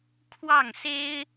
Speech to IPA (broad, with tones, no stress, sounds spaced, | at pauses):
kʰ w ɑ˥˩ ŋ s e˥ ɪ̯